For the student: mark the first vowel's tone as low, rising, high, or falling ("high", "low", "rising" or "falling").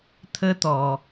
high